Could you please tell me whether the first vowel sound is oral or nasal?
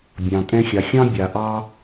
nasal